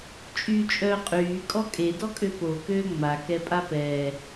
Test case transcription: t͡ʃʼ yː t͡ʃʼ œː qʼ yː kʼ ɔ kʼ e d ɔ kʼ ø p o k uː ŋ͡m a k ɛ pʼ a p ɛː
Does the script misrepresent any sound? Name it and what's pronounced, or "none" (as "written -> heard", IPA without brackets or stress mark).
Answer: uː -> øː